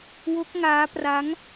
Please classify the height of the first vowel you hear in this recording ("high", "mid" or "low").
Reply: mid